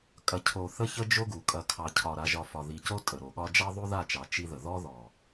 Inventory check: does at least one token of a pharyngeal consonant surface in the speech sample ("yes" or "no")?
no